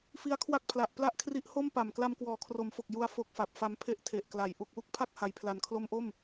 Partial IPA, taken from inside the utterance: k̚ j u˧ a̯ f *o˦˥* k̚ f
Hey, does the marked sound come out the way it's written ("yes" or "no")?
yes